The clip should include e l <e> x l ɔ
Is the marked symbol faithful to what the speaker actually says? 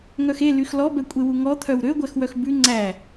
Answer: no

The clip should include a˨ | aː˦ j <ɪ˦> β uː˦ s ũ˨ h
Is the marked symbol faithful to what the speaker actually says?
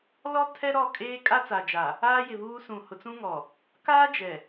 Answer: no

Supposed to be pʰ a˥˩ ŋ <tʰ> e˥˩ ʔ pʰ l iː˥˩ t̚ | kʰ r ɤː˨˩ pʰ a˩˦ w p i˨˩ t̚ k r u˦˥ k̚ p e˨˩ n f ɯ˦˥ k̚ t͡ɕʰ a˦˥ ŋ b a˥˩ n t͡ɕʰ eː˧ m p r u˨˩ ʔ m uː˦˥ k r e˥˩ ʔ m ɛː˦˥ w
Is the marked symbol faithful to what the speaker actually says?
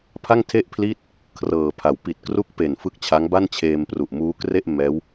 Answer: yes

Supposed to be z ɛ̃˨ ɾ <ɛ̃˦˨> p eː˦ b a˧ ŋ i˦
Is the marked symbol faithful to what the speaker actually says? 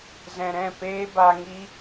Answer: yes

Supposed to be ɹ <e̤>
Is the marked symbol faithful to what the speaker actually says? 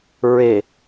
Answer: no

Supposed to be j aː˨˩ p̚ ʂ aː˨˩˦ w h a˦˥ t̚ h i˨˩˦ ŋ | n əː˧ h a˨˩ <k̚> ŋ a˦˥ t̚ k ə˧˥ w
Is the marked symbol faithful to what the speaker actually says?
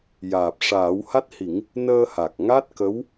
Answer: yes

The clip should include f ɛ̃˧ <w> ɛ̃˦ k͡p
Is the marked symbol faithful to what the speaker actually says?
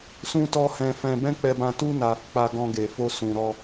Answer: no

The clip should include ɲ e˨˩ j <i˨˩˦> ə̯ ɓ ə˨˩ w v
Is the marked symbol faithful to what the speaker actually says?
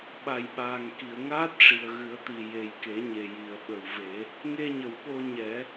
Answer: no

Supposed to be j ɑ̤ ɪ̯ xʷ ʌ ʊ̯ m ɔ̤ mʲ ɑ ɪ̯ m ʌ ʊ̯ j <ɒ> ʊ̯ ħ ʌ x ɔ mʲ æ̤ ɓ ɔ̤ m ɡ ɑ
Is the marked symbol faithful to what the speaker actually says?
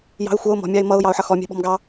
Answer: no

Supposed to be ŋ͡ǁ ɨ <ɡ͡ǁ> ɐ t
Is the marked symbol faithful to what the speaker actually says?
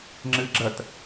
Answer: yes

